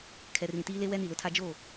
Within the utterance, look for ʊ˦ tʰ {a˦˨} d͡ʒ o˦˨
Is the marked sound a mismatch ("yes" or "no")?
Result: yes